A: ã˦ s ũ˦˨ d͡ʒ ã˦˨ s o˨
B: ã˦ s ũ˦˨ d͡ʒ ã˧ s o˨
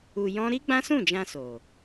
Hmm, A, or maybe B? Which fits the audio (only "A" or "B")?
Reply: B